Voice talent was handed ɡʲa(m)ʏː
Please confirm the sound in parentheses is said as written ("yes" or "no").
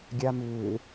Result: yes